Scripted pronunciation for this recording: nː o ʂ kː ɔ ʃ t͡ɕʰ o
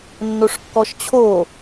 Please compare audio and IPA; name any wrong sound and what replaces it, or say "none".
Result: none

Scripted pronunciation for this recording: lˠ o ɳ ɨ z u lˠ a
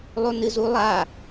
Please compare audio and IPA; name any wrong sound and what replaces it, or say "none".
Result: ɳ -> n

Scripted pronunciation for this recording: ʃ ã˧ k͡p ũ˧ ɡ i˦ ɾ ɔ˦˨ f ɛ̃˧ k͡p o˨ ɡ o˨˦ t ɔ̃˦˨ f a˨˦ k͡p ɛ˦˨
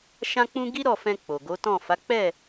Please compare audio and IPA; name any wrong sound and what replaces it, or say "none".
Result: none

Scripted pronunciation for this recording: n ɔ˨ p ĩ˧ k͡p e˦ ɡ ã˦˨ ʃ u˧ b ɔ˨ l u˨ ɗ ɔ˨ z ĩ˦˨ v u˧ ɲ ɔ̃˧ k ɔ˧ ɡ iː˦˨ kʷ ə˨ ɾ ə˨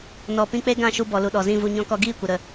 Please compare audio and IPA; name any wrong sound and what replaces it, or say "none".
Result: none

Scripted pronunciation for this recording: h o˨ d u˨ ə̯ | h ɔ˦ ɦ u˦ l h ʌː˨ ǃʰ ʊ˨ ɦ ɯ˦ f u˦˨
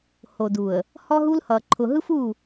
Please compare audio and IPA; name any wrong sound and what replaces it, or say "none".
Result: none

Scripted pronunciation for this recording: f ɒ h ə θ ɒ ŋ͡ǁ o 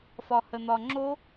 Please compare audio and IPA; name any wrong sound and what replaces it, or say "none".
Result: θ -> n̪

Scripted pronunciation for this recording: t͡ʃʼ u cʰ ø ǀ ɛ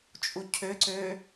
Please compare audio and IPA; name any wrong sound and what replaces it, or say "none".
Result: ɛ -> ø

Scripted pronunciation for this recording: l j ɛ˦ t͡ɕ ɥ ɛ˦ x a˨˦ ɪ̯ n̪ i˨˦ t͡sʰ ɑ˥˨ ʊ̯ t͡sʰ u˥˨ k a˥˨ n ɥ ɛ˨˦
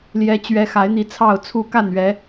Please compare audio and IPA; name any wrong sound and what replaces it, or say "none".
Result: none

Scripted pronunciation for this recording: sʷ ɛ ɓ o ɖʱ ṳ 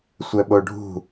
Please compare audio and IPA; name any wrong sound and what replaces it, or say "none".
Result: none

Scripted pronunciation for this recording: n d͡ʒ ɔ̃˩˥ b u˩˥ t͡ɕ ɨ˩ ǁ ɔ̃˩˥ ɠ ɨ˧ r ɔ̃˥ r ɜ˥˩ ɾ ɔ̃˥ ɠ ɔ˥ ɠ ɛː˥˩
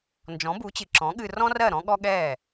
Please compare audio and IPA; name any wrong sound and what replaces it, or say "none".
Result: none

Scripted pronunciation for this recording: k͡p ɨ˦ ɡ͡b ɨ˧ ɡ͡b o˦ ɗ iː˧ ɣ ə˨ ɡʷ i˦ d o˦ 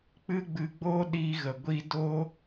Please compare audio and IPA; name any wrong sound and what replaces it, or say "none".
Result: none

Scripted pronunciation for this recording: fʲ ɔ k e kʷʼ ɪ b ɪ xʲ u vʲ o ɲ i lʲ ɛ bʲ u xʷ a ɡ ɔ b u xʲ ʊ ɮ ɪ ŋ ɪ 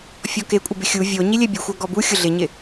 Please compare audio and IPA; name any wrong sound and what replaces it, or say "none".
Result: ŋ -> ɲ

